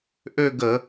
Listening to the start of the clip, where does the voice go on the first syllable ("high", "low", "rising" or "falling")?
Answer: falling